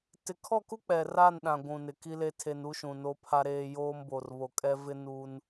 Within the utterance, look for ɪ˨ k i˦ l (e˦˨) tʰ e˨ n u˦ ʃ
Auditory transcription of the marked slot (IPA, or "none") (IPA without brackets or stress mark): e˦